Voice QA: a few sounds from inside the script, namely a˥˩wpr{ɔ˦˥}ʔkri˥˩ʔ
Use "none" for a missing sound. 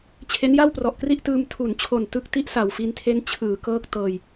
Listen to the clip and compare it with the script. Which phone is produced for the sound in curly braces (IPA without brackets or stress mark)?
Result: ɔ˨˩